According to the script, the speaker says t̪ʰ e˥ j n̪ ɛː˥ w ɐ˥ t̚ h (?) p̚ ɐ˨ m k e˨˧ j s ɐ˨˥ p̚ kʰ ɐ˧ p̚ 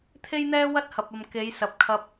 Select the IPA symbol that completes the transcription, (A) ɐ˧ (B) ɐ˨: B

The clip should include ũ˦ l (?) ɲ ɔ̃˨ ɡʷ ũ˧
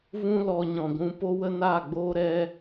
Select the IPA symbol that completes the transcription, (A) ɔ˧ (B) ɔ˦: A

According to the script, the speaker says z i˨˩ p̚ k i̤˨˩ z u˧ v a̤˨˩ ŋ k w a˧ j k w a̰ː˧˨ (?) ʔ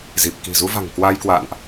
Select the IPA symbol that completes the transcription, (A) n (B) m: A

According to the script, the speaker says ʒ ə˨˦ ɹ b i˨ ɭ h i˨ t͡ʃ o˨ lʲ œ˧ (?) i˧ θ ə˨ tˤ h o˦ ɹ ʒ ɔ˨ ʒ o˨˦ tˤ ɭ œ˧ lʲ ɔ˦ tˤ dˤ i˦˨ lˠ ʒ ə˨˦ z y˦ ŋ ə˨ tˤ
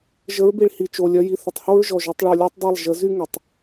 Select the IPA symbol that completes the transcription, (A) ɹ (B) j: B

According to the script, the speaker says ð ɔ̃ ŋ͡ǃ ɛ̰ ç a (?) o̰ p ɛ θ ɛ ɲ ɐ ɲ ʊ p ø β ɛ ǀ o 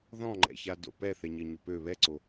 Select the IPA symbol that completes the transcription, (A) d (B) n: A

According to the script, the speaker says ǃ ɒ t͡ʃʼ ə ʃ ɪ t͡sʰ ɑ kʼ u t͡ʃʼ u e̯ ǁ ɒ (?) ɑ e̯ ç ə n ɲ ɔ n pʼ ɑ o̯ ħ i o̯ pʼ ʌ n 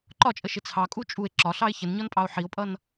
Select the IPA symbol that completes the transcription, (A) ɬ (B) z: A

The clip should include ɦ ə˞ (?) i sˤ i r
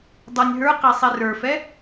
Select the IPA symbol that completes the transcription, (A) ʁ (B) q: B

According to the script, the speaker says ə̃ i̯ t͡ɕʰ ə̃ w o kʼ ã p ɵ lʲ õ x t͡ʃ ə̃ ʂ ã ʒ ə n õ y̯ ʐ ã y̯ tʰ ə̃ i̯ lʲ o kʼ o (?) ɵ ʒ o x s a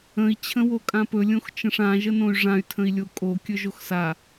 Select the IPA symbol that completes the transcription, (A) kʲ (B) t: A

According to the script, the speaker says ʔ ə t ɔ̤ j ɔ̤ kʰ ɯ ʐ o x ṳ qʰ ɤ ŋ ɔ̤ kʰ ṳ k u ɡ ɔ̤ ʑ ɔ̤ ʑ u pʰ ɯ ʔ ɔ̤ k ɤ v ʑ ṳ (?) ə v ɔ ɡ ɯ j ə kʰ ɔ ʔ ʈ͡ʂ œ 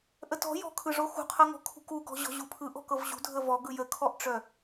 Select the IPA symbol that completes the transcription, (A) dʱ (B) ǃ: A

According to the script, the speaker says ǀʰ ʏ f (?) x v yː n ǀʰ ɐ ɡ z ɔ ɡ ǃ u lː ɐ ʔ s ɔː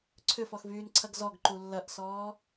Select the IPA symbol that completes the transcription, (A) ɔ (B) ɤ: A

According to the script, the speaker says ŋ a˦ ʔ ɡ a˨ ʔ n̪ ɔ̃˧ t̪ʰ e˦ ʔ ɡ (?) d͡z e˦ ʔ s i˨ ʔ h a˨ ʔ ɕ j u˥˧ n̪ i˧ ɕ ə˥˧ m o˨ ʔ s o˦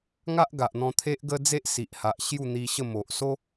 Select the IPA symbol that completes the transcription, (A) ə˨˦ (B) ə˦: B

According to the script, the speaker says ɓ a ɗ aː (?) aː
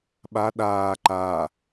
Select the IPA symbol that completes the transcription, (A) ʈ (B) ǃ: B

